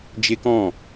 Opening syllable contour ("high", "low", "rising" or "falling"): high